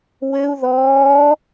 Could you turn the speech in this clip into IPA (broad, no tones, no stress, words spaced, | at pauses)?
wɘu̯ ðɔː